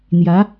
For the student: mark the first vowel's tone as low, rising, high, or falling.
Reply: rising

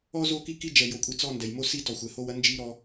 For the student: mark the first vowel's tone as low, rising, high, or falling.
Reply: high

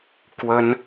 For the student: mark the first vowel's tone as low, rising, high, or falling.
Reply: high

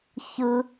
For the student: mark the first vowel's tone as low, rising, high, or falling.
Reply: high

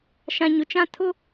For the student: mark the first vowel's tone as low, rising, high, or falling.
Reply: low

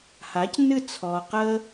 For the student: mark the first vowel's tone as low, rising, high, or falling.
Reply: rising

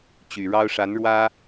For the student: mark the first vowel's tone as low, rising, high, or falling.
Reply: low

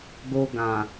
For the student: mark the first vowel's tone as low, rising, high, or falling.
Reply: high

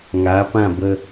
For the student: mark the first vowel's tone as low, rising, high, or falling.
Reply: rising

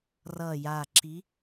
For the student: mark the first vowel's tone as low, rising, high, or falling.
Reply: low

